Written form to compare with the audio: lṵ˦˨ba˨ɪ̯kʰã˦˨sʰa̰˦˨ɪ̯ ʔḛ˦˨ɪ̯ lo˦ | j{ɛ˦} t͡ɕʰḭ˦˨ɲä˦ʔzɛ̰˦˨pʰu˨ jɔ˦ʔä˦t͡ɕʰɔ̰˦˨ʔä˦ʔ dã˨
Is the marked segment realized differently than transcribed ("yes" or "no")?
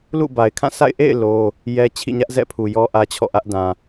no